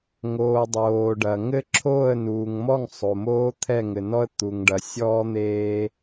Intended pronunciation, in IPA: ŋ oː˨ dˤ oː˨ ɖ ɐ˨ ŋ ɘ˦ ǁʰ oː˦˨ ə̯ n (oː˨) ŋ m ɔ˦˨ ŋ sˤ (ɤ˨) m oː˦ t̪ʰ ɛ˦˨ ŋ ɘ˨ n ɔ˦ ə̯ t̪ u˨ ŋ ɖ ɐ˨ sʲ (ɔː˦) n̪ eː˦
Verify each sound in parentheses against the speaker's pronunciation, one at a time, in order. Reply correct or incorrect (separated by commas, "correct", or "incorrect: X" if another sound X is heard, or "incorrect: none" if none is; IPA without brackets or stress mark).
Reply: incorrect: uː˨, incorrect: o˨, correct